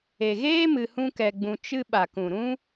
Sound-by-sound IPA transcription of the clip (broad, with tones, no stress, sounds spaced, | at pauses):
e˨ ɣ eː˦ m ɨ˧ h ũ˦ k ɛ˧ ɡ͡b ũ˧ t͡ʃ ɨ˧ ɓ a˨ k ũ˨ ɾ ũ˦